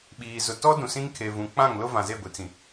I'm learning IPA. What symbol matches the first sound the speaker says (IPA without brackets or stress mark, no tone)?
ɓ